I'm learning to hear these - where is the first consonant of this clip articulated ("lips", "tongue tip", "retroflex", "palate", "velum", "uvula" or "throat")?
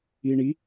retroflex